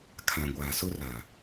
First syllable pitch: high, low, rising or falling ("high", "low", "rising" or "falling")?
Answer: low